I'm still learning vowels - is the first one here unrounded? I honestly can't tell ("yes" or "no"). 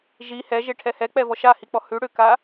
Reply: yes